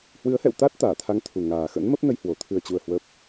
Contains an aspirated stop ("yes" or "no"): yes